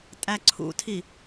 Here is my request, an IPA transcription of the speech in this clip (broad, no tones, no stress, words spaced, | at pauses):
tʼæǀʰṵtʰi